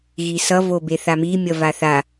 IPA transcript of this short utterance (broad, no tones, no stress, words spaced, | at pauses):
ɣisʌ vobeθami mʲʌvaθa